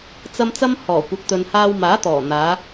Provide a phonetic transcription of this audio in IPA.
t͡s ɐ˧ m t͡s ɐ˧ m h ɔː˨˩ kʷ ɐ˨ k̚ t̪ ɵ˨ n h aː˧ w m aː˨˥ t̪ ɔː˨˩ n̪ aː˨˧

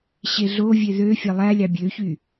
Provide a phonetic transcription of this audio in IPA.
ɕ e ɮ o vʲ e ð ø fʲ ɑ lˠ æ lʲ ɑ bʲ ø ç y

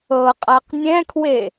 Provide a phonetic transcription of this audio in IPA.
ɤ qʼ a q nʲ ɛ̃ kʰ w e

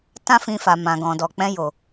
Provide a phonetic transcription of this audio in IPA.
t ã˦ f ĩ˧ f a˨ m ã˨ ɡ ɔ̃˨ d ɔ˨ k͡p ɛ̃˧ j o˨

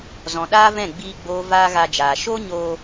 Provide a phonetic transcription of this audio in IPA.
z ɔ̃˨ ɗ aː˦ v ɛ̃˦˨ ɡ͡b iː˦ ɡ͡b oː˦ v aː˦ ɣ a˧ d͡ʒ aː˨ ʃ o˦ ɲ oː˧

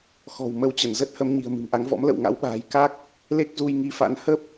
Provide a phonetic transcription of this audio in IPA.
x ɔ̤˨˩ w m ə˨˦ w t͡ɕ ə˧˩ n z ə˦˥ t̚ h ə˨˦ m ɲ i̤˨˩ ə̯ m ɨ̤˨˩ m ʔ a˨˦ ŋ v ɔ̰˧˥ m l ə̰˧˨ w ŋ a̰˧˥ w ɓ a̤ː˨˩ j k a˦˥ k̚ | l e˦˥ k̚ z u˧ j ŋ i˨˦ f a̰˧˥ n h ə˦˥ p̚

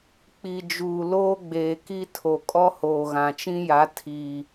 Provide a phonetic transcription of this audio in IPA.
k͡p i˨ d͡ʒ uː˨ l oː˦ ɡ͡b eː˨ k i˦ tʰ o˨ kʼ ɔ˦ h oː˨ ɣ ã˨ t͡ʃ ĩ˦ j a˨˦ tʰ i˨

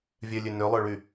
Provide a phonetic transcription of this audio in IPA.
vʲ œ lʲ ø n ø lˠ œ ɭ y

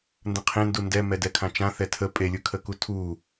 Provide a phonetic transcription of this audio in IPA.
n d ə̃ qʰ ẽ n d u n d ɛ m ɛ d ɛ kʰ ã t͡ʃ ã θ ɛ tʰ ə pʼ e lʲ ɯ kʰ ə k u tʰ u

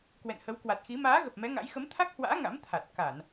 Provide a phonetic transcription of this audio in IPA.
k w ɛ̰˧˨ n h ə˨˦ w k w a˨˩ t̚ x i˨˦ m aː˨˦ ɣ ə˨˩ p̚ m ɛ˨˦ ŋ a̰˧˥ j x ə˨˦ m t̪ʰ a˦˥ k̚ h w a̰ː˧˥ ŋ a̰˧˥ m t̪ʰ a˨˩ t̚ k a˧˩˨ n

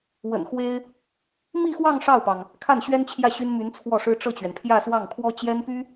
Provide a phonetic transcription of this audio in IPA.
w ə̰˨˩ n x w e˥ ɪ̯ | m i˥˧ x w ɑ˥˧ ŋ ʂ ɑ˥˩ ʊ̯ p ɑ˩ ŋ | kʰ a˥˩ n ɕ ɥ ɛ˥ n t͡ɕʰ j ä˥˩ ɕ y˥ n m y˧˥ n t͡sʰ w ɔ˥˩ ʂ ɻ̩˥ ʈ͡ʂ ɤ˥˩ t͡ɕ ɥ ɛ˩ n pʰ j ä˥˧ s w ɑ˥˩ ŋ kʰ w ɔ˥ t͡ɕ j ɛ˥ n p y˥

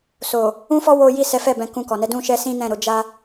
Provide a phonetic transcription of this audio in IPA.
s o˨ | ũ˦ f ɔ˦ w o˦ j i˦˨ s ɛ˨˦ f ɛ˦˨ b ɛ̃˧ k ũ˧ k ɔ˨ n ɛ˧ d ũ˦ ʃ ɛ˦ s ĩ˦ n ɛ̃˦˨ ɾ o˧ d͡ʒ a˦

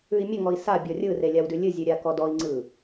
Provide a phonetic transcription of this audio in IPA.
ʉ i̯ mʲ ə ŋ ɔ i̯ s a bʲ ɔ rʲ ɯ r e lʲ a w d ʉ lʲ ɨ zʲ ʉ ɾʲ a k ɔ d ɔ i̯ ŋ͡ǀ ɯ

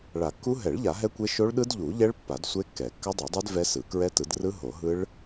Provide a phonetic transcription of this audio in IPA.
ɭ a˨˩˦ kː u˦˥ ɦ ɛ˨˩˦ ɭ ʎ a˨˩˦ ɦ ɛ˦˥ kʷ e˦˥ ʃ o˦˥ ɭ ɗ ɯ˦˥ d ʎ u˨˩˦ ʎ ɛ˦˥ ɭ pː a˨˩˦ d sʷ e˦˥ kː ɛ˨˩˦ kː a˦˥ dˤ a˨˩˦ dˤ ɛ˦˥ d v ɛ˦˥ s ɯ˨˩˦ k ɹ ɛ˦˥ t ɯ˨˩˦ d r ɯ˦˥ ɦ o˨˩˦ ɦ ɯ˦˥ ɭ

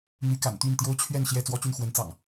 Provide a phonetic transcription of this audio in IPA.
n̪ y˨˦ k a̰˨˩ n t̪ y˥˨ n t̪ j o˦ ʊ̯ t͡ɕʰ ɥ ɛ˥˨ n ɕ j ɛ˥˨ t͡s w ɔ˦ t͡ɕ y˥˨ n x w ə˨˦ n t͡s ɑ̰˨˩ ŋ

